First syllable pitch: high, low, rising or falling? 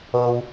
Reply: low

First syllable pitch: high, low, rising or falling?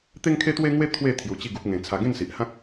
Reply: high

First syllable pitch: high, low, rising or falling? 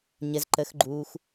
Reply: low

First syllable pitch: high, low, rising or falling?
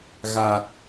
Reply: low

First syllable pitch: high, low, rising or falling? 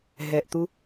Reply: low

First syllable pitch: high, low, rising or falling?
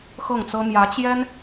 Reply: falling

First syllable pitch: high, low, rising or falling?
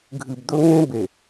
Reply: low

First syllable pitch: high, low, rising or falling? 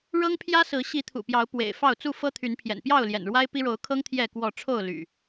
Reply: high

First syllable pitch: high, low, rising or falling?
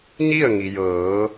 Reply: falling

